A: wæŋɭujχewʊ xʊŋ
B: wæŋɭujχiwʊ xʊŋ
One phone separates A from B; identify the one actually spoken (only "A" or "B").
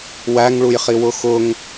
B